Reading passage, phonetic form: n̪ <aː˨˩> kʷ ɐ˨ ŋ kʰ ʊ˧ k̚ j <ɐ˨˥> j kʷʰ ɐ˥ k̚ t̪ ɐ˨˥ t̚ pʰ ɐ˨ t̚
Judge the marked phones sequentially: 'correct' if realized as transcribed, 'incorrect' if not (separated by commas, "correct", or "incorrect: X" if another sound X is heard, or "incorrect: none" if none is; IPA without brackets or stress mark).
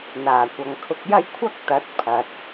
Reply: correct, incorrect: ɐ˥